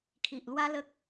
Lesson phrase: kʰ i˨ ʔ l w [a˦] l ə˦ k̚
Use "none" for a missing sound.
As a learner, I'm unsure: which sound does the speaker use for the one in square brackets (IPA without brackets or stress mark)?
a˦